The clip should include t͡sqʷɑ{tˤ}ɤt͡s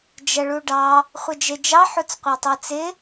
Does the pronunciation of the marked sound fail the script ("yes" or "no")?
no